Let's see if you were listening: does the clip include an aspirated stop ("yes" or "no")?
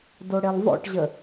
no